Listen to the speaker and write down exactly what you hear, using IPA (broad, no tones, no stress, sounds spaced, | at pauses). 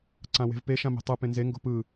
ǀ ã w e̤ v p e ʃ ã m e̤ tˤ ɯ p ẽ n z e ŋ ɡ o̤ p ɯ